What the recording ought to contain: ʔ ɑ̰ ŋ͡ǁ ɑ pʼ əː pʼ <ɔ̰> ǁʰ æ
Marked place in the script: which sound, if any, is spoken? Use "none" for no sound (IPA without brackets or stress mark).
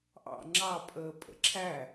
ə̰